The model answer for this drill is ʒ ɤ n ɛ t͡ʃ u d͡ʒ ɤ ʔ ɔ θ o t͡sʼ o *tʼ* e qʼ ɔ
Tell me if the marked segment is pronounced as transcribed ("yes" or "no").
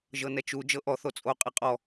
no